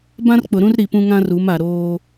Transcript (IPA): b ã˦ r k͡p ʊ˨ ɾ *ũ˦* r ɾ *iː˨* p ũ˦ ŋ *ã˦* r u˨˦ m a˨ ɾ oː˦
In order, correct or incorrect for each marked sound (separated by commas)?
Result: correct, incorrect, correct